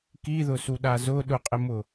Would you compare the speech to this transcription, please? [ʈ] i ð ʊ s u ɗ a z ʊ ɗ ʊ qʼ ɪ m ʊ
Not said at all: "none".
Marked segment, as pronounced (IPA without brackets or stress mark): k